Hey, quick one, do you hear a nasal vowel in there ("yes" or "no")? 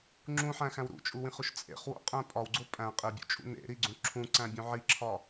yes